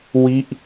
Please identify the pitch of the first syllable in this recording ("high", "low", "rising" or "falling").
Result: falling